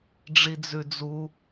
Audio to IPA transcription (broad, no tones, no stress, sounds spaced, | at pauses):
ɖ͡ʐ i d͡z ʉ d͡z u